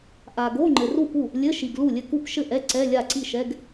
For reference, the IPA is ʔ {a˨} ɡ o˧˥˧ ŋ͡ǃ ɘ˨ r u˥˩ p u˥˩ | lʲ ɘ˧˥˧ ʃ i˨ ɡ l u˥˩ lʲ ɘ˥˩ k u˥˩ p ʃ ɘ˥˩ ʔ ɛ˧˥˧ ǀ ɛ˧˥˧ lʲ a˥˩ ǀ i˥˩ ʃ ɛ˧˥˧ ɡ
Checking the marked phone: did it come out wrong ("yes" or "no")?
no